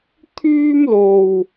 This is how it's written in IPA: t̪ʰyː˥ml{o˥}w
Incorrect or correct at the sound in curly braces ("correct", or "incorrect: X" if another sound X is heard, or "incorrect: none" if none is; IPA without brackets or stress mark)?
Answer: incorrect: o˧